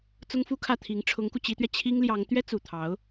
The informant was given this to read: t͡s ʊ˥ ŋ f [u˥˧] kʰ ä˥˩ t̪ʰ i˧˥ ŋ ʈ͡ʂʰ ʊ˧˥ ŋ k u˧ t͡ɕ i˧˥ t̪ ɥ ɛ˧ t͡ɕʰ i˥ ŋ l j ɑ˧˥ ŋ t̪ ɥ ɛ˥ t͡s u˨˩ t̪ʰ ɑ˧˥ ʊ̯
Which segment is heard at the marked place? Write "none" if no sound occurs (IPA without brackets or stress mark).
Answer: u˥